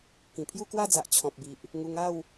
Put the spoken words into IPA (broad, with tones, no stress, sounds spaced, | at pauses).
k ĩ˨˩ pʰ j u˥˧ k w a˥˧ d͡z a˨ ʔ t͡ɕʰ ɔ̃˨ p̚ b i˨ ʔ | ŋ u˧ ŋ a˥˧ w